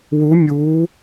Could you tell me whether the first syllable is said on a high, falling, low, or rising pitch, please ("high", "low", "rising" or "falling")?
rising